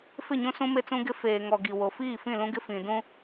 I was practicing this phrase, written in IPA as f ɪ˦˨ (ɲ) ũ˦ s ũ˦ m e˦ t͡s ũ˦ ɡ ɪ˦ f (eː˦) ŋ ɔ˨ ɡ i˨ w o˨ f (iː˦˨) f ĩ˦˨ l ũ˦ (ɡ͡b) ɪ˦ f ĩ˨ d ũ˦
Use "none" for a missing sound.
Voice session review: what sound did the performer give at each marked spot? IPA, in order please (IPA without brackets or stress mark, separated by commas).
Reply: ɲ, eː˨, iː˦˨, ɡ